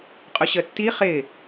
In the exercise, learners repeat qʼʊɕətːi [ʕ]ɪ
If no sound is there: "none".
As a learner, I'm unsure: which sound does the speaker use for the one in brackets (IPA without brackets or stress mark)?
χ